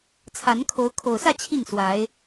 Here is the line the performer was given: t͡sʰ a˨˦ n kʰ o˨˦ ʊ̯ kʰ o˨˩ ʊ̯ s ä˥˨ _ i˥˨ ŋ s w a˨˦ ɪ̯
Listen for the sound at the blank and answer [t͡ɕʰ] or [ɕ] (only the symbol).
t͡ɕʰ